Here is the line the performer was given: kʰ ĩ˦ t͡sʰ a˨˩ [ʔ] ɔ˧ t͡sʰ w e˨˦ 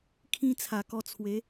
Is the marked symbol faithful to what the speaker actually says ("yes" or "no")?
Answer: no